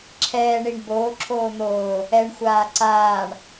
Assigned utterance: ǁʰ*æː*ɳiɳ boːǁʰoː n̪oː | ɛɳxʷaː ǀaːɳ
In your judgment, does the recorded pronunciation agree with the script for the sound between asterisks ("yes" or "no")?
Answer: no